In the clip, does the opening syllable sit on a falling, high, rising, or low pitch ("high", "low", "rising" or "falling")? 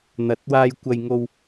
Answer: rising